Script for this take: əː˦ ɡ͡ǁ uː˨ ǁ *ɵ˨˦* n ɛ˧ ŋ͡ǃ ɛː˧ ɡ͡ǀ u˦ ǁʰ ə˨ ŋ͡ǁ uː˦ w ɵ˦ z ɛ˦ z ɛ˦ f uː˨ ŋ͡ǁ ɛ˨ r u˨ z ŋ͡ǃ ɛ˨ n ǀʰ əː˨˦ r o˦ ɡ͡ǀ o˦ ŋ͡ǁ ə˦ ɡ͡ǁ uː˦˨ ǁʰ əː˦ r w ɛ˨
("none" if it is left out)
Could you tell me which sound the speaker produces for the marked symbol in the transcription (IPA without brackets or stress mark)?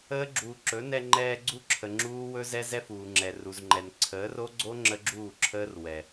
ɵ˨˦